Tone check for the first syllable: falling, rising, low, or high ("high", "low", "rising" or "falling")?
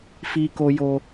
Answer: high